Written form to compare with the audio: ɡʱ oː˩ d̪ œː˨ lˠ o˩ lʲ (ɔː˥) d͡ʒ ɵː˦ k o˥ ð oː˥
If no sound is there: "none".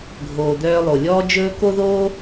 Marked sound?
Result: ɔː˦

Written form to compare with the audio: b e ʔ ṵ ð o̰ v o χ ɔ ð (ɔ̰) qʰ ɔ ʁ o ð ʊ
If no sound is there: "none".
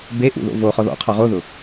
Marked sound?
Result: ɔ̰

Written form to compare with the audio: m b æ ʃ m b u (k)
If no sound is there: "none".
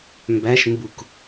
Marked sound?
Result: k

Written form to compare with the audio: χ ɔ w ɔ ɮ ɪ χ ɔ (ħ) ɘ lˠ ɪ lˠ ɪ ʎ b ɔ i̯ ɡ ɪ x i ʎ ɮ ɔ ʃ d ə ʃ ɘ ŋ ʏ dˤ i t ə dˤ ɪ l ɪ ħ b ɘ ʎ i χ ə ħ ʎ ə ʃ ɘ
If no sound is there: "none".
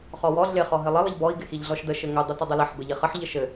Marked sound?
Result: ɦ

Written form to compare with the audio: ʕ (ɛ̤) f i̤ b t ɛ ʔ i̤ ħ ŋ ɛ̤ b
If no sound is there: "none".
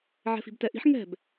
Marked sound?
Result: ɛ̤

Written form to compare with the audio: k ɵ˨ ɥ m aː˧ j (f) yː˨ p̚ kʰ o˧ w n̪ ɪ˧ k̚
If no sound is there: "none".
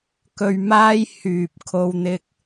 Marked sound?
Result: h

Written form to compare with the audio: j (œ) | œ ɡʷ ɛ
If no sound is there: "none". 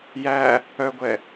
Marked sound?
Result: æ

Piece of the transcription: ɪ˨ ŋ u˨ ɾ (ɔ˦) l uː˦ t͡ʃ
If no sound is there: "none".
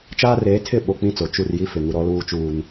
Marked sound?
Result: ɔ˦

